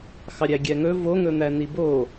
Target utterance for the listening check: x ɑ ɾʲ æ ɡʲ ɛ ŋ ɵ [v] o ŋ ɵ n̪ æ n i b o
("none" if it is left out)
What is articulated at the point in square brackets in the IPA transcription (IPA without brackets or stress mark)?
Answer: v